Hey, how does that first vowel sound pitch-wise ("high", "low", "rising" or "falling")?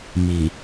low